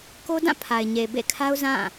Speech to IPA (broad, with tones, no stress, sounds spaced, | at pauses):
k o˦ d ã˦˨ pʰ a˨ ɪ̯ ɲ e˨ b ḛ˦˨ kʰ a˦ ʊ̯ z ã˦˨